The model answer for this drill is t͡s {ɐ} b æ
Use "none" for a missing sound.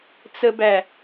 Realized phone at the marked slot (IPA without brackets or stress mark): ə